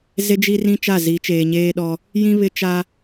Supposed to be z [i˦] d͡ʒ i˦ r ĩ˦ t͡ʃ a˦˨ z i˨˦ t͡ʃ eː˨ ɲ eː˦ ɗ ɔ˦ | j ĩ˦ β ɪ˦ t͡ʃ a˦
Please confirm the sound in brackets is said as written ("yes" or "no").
no